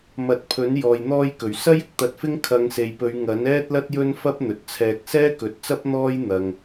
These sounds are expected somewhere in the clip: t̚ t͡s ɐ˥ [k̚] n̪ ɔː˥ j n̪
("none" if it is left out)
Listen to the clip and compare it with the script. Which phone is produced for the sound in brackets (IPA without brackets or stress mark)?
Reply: p̚